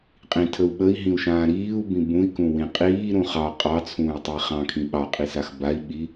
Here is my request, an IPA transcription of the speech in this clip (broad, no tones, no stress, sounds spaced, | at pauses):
qʼ ĩ tʰ ə u̯ ɓ ə i̯ ɦ ĩ u̯ ʃ ãː ɾ iː u̯ b ĩ b ũ i̯ k ũ w ĩ qʼ iː ɾ ũ χ ɑ qʼ ɑ t͡sʰ ũː y̯ tˤ ə i̯ χ ɑ̃ kʰ ĩ ɓ ɑ qʼ i s a x b a i̯ ɓ i